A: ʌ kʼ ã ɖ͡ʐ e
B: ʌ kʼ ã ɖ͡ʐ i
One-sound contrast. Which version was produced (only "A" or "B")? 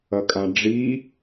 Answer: B